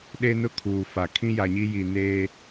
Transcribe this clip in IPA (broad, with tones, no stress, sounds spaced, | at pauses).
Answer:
ɗ e˦ n ʊ˦ kʰ uː˨ f a˨ kʰ ĩ˦ j a˨ ɲ i˦ j i˨ n eː˦